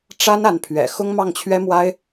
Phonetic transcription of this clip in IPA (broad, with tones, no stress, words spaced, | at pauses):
ʈ͡ʂa˥n a˧˥npʰɥɛ̰˨˩ xʊ˥ŋmɑ˥˩ŋt͡ɕʰɥɛ˥mwa˥ɪ̯